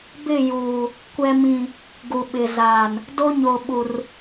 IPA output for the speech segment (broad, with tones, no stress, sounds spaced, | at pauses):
b ɪ˦˨ j uː˨ | kʷ ɛ˨ m ĩ˨ | ɡ u˨ ɓ ɪ˨ z aː˨ n | d o˦ ɲ o˨ ɓ u˨ r